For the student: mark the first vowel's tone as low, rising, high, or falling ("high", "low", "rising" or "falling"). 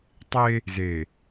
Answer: high